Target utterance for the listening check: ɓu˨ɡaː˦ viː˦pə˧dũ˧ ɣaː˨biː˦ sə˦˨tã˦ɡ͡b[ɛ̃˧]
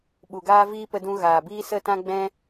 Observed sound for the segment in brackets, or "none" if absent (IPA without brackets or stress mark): ɛ̃˦